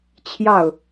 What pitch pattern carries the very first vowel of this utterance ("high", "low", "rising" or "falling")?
falling